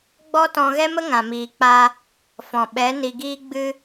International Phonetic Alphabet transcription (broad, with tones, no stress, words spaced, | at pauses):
ɡ͡bɔ˦tɔ̃˧ɣɛ˦mə˦ ŋã˨miː˨k͡pa˧ | fɔ̃˨ ɓɛ˨˦ ni˨ɡiː˧ ɡ͡bɨ˦